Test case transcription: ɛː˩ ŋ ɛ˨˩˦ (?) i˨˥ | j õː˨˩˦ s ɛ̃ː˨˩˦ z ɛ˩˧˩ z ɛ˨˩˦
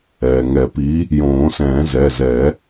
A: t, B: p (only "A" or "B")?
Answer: B